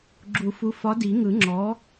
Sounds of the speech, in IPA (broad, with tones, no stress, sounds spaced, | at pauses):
ɡ͡ǁ u˨˩˦ f u˨˥ f ɒ˨˥ d i˨˩˦ ŋ ɯ˨˩˦ ŋ͡ǁ ɔ˨˥